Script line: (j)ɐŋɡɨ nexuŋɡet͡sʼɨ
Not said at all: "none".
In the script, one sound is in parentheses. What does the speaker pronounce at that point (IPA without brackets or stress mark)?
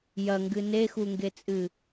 j